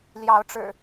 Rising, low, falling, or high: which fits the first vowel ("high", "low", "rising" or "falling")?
rising